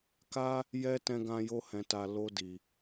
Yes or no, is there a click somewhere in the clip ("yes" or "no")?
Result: no